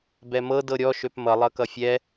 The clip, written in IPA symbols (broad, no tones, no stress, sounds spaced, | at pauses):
b ɛ m ɤ d ɤ ɾʲ ɔ ʃ ø p m ʌ lˠ ʌ k ʌ fʲ ɛ